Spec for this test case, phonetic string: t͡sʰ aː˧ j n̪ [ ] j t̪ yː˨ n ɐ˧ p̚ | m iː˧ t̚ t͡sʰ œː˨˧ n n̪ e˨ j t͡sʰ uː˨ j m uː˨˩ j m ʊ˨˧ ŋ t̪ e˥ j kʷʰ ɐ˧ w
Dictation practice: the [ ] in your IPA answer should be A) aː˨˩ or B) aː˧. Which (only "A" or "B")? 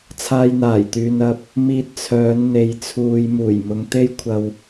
A